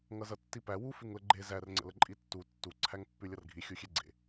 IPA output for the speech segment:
ŋ ʌ z ʌ tː i p æ w u f ʉ ŋ l ə ɡ͡ǃ e z æ r ŋ͡ǀ ə̰ l ə ǃʼ i tː u tː u ǀʰ æ ŋ pː ʉ lʲ ʌ r ɡʱ i xʲ u xʲ e ɡ͡ǀ ḛ

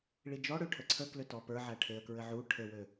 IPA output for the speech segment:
ɭ i d͡ʒ ɔ ɽ ø ʈʰ ə ǀʰ ə k l ø t ɔ p ə˞ ʕ æ ʈʰ e ə̯ k ɹ ɘ ʕ u ʈʰ ɘ w ø

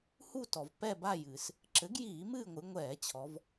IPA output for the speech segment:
h u˦˨ t ɔ˩ v p ɛ˦˨ b a˦˨ j ɨː˩ s | ǁ ɘ˩˥ ɡ j iː˧˩˧ m ɨː˦˨ ŋʷ ɨ˩˧ ŋʷ ɛː˧˩˧ t͡ɕʰ ɔ˩˧ v

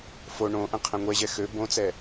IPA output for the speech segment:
f o ɳ õ ʔ ɛ̃ qʰ ɛ̃ ŋʷ ɛ ʑ ɛ x ø b õ t͡s ɛ

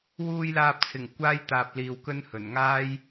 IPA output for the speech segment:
w uː˨ j l aː˨ p̚ t͡sʰ ɪ˨˩ ŋ kʷ aː˧ j t̪ aː˨ p̚ l iː˨ w k ɵ˧ n h ɵ˨˩ n ŋ aː˧ j

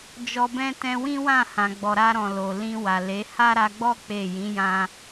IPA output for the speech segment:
d͡ʒ ɔ˧ b ɛ̃˦ t ɛ̃˧ w ĩ˦ w ã˦˨ h ã˨ ɡ͡b ɔ˨ ɾ a˧ ɾ ɔ̃˨ l o˨ l ĩ˧ w a˨ l e˨˦ h a˦ ɾ a˧ ɡ͡b ɔ˦ k͡p e˦˨ j ĩ˨˦ j ã˧

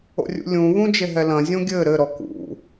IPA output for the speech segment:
o̰ rʲ ṵ lʲ ũ β ũ d͡ʒ e ɦ ɛ l ɐ̃ zʲ õ ɡʲ ɘ ɾ ɘ ɾ ɔ k ṵ

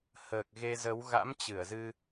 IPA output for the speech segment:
h əː˨˩ k̚ ɣ e˧ z ə˨˦ w ɣ a̰˧˥ m t͡ɕ ɨ˧˩ ə̯ z ɨ˧

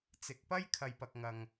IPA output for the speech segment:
t͡s ɪ˨˥ k̚ p ɐ˥ j kʰ ɐ˧ j p ɐ˧ k̚ ŋ ɐ˧ ŋ

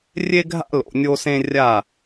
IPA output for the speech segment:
rʲ e˧ ɡʱ a̰˧ l o̰˨ nʲ o˧ s ẽ˧ rʲ a˦˨

